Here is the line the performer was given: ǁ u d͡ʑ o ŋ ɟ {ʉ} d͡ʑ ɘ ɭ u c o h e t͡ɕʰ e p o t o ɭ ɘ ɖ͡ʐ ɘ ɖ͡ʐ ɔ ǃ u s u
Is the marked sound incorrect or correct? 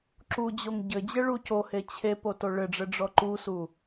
incorrect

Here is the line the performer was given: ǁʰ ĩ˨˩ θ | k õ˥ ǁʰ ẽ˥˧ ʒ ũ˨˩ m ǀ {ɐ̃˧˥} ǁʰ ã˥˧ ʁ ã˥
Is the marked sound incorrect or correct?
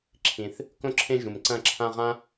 incorrect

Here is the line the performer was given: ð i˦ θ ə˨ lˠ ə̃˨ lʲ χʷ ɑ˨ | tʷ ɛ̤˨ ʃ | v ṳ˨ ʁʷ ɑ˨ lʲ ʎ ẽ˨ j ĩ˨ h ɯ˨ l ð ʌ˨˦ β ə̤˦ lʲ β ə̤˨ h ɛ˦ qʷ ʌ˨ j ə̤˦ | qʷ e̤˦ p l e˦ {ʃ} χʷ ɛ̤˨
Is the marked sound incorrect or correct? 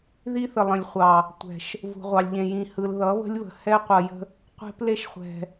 correct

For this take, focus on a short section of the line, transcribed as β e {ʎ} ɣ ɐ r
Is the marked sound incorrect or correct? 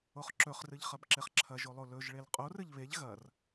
correct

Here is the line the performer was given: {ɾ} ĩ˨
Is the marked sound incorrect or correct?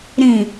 correct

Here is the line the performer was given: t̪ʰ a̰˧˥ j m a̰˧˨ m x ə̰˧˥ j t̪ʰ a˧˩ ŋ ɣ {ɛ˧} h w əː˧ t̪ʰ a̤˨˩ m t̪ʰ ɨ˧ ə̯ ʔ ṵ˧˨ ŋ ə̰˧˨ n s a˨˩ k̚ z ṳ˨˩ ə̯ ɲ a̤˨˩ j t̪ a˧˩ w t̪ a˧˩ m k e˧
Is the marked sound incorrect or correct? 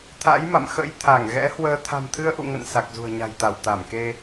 incorrect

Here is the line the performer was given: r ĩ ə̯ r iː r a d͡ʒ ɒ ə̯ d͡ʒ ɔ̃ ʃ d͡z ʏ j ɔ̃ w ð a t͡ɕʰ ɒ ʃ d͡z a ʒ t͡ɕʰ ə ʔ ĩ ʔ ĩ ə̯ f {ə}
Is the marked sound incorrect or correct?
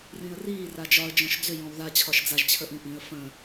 incorrect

